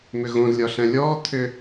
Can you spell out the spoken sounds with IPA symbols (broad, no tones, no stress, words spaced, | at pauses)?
mʏɣõz lʲɒɬæ̃lʲɔː t̪ʰʏ